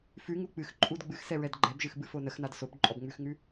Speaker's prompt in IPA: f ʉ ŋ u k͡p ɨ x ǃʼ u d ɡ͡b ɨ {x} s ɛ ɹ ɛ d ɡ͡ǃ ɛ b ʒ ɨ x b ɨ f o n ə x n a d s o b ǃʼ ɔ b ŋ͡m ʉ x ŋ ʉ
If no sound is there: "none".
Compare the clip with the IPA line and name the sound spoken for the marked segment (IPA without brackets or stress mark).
x